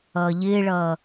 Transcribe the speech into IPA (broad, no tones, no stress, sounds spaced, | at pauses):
ʌː ʎ ɪː ɭ ʌː